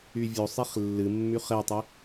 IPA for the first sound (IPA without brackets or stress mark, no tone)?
y